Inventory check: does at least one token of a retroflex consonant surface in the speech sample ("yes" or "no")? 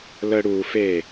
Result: yes